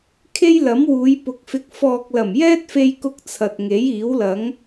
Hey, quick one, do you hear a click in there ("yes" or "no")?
no